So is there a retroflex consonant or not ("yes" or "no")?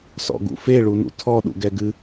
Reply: yes